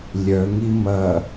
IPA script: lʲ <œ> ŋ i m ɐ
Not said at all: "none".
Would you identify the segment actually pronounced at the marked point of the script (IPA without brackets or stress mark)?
œ